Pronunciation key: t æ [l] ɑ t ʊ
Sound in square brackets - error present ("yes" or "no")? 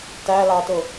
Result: no